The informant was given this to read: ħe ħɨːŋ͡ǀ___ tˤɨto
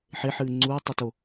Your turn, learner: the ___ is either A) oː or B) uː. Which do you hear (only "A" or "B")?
B